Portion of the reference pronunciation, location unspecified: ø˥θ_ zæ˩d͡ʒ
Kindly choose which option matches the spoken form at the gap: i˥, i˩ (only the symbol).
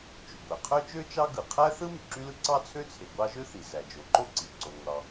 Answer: i˩